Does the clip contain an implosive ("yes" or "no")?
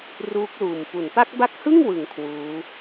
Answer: no